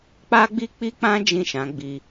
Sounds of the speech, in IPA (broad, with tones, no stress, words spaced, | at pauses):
k͡pa˦ɡ͡bi˦ k͡pi˦k͡pã˦ d͡ʒĩ˦˨ʃã˨˦ɡ͡bi˧